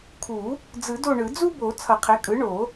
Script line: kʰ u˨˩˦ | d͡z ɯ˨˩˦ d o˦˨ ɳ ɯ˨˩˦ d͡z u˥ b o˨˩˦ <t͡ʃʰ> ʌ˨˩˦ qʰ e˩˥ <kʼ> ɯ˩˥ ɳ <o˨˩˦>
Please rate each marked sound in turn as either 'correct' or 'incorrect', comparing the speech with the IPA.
incorrect, correct, correct

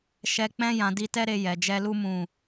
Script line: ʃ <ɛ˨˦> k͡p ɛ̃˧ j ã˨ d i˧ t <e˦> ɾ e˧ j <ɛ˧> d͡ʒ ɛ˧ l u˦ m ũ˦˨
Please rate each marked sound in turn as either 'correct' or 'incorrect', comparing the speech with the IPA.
incorrect, incorrect, incorrect

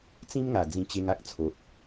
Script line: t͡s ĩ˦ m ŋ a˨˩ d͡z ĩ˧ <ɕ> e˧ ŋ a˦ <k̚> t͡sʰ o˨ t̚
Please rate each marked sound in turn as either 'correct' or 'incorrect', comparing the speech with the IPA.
incorrect, correct

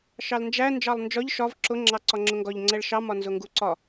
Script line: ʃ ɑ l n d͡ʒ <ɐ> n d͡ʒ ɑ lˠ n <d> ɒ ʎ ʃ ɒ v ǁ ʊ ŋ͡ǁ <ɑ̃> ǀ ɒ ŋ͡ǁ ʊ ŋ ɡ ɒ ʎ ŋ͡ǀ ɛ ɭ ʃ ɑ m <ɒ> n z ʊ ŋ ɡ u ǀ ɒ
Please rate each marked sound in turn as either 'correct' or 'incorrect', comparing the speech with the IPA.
incorrect, incorrect, incorrect, correct

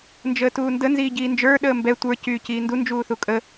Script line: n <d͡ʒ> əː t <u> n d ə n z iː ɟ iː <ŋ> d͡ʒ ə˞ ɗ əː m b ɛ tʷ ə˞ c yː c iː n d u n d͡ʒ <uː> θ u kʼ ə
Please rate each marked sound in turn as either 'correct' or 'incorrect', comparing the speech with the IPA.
correct, incorrect, incorrect, correct

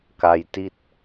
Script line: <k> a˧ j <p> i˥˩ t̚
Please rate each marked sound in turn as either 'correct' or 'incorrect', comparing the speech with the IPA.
correct, incorrect

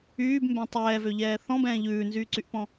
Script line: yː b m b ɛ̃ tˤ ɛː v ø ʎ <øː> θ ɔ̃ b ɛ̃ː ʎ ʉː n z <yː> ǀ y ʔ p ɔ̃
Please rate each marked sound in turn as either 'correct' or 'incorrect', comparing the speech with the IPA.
incorrect, correct

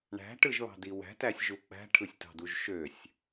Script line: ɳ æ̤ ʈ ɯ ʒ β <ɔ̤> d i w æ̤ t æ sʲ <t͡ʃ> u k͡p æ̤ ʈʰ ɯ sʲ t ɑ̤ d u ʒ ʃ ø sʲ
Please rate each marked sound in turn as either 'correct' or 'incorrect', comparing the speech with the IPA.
incorrect, incorrect

